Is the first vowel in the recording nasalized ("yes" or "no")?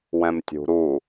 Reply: yes